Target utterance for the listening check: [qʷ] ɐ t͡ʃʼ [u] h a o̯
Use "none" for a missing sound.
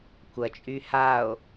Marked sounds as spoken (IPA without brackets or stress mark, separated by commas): kʷ, y